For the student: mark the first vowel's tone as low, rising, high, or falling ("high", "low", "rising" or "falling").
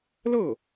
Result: falling